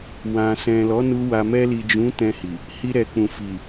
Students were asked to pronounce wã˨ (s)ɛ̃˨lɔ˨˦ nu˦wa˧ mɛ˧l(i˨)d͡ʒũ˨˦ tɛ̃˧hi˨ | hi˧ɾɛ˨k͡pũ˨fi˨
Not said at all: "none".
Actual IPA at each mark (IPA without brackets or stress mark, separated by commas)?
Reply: s, i˨